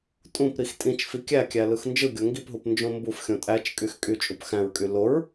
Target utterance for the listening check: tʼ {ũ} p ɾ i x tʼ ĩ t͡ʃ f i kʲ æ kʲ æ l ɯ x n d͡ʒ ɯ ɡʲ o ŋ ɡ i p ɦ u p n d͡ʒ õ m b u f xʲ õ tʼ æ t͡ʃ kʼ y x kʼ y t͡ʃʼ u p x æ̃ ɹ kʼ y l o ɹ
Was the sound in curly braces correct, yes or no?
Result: yes